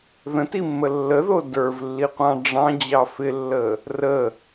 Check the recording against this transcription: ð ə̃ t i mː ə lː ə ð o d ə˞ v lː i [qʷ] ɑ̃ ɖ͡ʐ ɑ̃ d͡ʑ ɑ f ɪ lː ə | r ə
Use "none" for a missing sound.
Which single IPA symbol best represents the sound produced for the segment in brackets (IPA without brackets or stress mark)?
qʷ